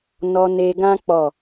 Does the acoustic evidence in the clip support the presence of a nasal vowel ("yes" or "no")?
yes